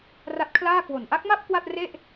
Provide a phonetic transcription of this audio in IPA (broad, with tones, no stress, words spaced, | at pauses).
ra˦˥t̚kʰlaː˥˩ kwo˨˩n ʔa˦˥k̚ma˥˩p̚ kwa˥˩t̚re˥˩ʔ